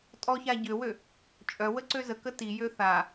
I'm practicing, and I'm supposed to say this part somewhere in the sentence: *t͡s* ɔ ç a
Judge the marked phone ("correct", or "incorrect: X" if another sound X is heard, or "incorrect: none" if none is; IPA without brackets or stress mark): incorrect: tʼ